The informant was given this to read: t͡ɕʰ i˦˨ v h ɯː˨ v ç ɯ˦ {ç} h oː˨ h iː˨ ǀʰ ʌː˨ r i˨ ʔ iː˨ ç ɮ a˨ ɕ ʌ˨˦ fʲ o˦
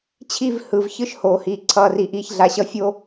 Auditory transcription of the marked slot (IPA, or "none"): ʃ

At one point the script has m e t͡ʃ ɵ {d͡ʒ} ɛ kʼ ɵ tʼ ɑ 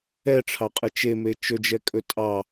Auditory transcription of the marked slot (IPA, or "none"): d͡ʒ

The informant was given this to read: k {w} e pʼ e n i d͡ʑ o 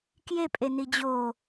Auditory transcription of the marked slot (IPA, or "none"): j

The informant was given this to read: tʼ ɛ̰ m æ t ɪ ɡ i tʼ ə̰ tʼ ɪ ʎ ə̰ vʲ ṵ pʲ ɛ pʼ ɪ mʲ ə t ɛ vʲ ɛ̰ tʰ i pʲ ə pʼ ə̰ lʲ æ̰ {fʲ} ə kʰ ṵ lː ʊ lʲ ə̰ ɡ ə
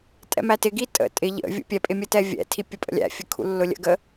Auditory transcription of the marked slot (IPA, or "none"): fʲ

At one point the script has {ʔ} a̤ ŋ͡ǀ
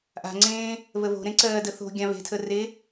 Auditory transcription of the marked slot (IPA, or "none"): ʔ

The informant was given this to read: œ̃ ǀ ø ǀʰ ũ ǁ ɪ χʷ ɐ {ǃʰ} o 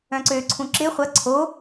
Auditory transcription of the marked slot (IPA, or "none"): ǀʰ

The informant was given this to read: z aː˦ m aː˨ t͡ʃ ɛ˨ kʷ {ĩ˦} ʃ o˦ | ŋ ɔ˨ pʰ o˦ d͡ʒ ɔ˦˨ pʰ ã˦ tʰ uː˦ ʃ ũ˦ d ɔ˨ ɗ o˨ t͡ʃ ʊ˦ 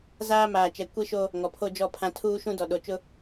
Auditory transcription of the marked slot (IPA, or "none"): i˦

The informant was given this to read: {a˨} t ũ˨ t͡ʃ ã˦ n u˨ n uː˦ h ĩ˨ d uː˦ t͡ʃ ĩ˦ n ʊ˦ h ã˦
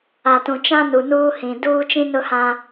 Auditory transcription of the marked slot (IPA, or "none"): a˨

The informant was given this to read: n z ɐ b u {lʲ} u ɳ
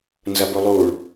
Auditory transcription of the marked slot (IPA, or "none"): lˠ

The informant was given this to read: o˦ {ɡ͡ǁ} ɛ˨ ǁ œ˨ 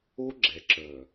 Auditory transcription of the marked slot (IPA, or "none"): ɡ͡ǁ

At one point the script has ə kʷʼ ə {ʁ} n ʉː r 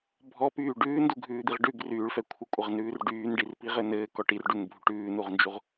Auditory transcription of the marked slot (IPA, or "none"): ʁ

